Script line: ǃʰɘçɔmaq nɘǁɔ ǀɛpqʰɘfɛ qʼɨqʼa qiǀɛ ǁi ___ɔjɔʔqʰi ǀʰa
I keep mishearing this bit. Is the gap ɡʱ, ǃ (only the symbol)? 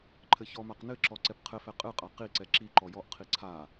ǃ